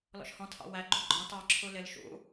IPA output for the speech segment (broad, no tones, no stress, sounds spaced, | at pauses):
l ɔ̰ ʃ h ɔ̃ tʰ ɑ̰ w æ ɡ͡ǃ u ɡ͡ǃ ɔ̃ t ɑ ǁʰ u l ɪ l ʃ ṵ